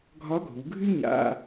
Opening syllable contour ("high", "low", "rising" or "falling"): rising